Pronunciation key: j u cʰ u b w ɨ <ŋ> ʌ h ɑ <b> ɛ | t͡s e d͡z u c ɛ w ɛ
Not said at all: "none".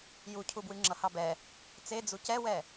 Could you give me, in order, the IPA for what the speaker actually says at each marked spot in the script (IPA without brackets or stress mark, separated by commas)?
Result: ŋ͡ǁ, b